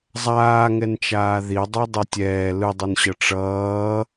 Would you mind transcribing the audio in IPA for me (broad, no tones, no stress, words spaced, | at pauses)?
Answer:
zˤaːŋɛnt͡ʃaː ðidˤodˤɯ tʲɛː lɯdˤunɕʌ ʈ͡ʂʌː